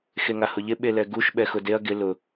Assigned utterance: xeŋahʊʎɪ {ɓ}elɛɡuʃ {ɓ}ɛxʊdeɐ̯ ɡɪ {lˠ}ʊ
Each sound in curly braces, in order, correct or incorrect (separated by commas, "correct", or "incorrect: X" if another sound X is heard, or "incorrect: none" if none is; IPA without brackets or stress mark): correct, correct, incorrect: l